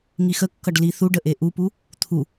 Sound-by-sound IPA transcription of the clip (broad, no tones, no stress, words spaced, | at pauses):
ŋixəkːʌɖ liθuɖə ʔeʔupu | t̪ʰu